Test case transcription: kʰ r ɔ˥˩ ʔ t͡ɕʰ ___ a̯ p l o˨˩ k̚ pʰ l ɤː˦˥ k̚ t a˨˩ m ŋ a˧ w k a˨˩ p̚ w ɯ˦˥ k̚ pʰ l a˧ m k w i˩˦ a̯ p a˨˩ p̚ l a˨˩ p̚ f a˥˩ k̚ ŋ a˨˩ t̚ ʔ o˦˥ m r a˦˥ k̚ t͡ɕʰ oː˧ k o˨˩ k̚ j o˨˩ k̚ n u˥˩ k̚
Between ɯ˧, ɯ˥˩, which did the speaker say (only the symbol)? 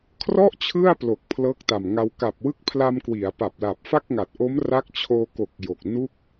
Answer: ɯ˥˩